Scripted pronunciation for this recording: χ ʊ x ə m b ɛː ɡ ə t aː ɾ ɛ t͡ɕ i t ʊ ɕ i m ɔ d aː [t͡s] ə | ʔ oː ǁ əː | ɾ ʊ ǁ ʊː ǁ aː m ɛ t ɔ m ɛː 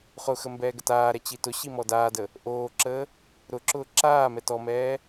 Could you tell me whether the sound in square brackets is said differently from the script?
yes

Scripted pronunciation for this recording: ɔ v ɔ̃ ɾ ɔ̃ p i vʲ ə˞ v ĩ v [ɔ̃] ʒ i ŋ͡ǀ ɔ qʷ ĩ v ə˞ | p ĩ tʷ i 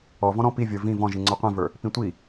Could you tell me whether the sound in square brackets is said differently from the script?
no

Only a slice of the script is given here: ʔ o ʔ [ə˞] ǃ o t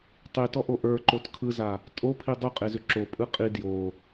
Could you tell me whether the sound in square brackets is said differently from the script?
no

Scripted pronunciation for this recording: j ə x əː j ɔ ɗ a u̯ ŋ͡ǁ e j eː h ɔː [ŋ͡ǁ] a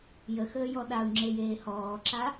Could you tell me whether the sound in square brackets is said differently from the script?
yes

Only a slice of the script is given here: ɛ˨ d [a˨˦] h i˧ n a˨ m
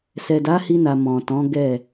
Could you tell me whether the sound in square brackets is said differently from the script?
no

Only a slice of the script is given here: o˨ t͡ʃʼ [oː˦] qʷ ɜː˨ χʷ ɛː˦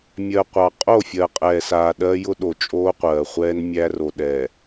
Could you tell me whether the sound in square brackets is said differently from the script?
no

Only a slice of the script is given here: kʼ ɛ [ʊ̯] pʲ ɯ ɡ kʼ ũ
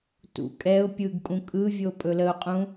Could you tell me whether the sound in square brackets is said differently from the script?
no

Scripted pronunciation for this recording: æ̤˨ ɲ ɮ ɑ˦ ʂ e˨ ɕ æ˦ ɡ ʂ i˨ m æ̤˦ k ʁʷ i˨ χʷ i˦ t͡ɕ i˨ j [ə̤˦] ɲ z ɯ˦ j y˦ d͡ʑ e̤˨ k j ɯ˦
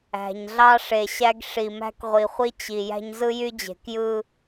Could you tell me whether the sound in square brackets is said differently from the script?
yes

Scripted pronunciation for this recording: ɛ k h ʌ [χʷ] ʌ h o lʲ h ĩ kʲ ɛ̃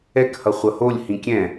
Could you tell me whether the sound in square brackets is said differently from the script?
no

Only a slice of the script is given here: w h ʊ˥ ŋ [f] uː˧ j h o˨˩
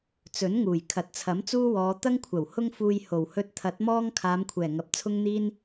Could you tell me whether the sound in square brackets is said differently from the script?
no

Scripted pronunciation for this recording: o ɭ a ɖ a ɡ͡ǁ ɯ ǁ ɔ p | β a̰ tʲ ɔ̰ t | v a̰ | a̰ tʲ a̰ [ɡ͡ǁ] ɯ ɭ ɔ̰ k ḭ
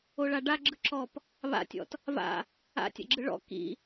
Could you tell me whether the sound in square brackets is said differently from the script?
no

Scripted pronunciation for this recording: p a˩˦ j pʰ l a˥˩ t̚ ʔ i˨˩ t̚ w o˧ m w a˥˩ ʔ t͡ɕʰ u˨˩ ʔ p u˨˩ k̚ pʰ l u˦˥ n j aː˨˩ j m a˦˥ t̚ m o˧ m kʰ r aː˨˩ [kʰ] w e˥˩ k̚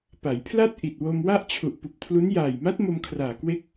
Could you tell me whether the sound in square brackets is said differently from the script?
yes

